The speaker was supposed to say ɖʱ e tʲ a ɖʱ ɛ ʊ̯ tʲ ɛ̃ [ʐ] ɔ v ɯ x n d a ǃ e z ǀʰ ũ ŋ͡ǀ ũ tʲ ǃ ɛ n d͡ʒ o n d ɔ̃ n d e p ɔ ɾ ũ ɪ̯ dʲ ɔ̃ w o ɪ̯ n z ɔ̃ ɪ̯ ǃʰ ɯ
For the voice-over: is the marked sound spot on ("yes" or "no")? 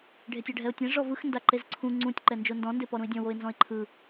yes